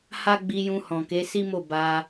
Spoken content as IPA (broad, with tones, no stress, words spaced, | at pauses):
ha˦ɡ͡bi˧ jũ˧hɔ̃˨ke˨˦ si˦mo˦˨ ba˧